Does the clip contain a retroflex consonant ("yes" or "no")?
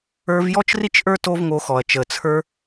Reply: no